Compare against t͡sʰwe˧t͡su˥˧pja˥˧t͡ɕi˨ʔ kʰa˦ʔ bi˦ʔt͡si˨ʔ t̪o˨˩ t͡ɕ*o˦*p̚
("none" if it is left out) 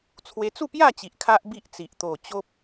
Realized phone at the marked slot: o˦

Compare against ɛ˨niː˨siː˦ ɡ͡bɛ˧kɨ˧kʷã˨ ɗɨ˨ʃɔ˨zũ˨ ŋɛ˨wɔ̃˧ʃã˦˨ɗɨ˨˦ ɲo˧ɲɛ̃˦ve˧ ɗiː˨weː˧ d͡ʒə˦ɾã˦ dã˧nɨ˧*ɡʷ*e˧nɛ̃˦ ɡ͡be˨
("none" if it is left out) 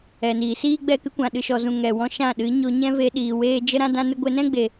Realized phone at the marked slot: ɡʷ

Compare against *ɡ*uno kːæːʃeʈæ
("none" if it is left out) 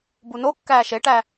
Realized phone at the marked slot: b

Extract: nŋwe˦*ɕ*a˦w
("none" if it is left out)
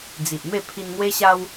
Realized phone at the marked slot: ɕ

